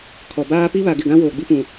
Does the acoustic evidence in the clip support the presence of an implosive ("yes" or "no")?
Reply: no